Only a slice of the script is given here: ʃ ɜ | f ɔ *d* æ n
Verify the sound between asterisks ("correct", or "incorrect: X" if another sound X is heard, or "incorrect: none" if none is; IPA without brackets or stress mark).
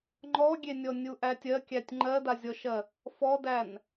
correct